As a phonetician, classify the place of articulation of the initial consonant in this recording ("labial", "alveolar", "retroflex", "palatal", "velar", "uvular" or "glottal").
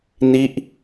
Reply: alveolar